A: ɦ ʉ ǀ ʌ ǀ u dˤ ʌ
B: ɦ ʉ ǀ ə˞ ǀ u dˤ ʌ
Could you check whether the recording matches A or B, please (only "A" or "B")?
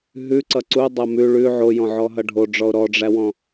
A